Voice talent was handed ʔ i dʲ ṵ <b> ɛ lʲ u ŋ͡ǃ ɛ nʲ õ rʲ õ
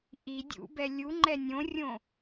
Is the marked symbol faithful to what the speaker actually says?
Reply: yes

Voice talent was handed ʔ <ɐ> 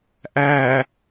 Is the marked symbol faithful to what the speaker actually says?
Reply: no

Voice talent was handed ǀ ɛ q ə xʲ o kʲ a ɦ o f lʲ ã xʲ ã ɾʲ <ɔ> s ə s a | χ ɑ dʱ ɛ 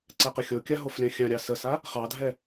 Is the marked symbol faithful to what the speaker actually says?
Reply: no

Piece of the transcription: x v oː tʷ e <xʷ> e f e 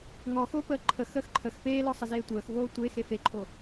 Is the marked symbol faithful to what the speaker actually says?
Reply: no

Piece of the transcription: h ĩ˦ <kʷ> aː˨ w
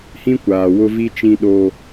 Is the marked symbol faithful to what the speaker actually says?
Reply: yes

